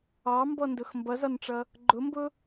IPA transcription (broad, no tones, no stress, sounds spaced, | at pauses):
ɑ m b ɔ n d ʊ x m b ʌ z ɒ n ʈ͡ʂ ʌ | ɡ͡ǃ ʊ m b ʊ